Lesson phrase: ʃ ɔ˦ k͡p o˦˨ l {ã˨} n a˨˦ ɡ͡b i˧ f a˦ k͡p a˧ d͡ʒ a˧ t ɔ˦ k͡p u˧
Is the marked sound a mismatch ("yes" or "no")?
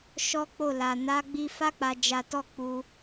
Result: yes